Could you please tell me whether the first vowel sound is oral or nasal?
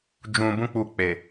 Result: nasal